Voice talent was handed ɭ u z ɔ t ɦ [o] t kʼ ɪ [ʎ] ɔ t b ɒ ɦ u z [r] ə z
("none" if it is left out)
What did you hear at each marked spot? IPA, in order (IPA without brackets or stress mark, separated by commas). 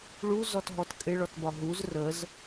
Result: ɔ, ɭ, r